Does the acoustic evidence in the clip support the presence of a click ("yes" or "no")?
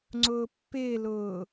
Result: yes